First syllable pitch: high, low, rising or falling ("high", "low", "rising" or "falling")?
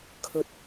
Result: low